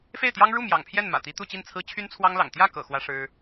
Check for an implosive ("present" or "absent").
absent